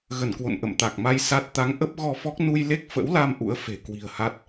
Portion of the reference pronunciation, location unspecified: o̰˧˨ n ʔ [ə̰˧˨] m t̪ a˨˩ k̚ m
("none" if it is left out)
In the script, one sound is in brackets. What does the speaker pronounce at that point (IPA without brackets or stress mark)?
ə̰˧˨